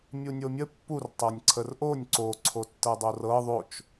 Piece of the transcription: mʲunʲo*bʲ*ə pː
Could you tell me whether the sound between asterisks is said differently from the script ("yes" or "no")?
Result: yes